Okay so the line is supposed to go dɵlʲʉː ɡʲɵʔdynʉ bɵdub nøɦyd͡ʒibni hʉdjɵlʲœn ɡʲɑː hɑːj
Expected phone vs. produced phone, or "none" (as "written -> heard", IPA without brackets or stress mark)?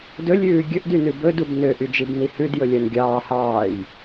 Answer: ɦ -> ʔ